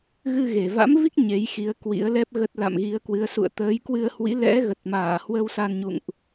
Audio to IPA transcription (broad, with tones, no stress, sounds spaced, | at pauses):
ɣ ɨ˧ ɣ e˨˩ v a̰˧˥ m v i˦˥ k̚ ɲ e˨˦ j x i˨˦ ə̯ k w ḭ˧˥ ə̯ l ɛ˦˥ p̚ ɣ ə˦˥ t̚ l a̰˧˨ m ɣ i˨˦ ə̯ k w ɨ˨˦ ə̯ s ṵ˧˨ ə̯ t̪ əː˨˦ j k w ɨ˧ ə̯ h w ḭ˧˥ l ɛ̰˧˥ ɣ ə˨˩ t̚ m aː˧˩ h w ə˧ w s a˧ n ɲ ṵ˧˨ ŋ ʔ